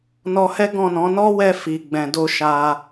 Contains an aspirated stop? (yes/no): no